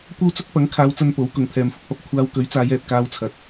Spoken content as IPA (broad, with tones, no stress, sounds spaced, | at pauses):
kʷ ɐ˥ w t͡s ʊ˥ k̚ p ɐ˨˥ ŋ kʰ aː˨˧ w t͡s ɐ˧ n p o˨˥ w k ʊ˨ ŋ t̪ʰ ɛː˨ m f ʊ˨˥ k̚ p ɐ˨ p̚ kʷʰ aː˧ w k ɵ˨˥ ɥ t͡s aː˨˧ j ɛː˨ t̚ k aː˧ w t͡sʰ ɐ˨ t̚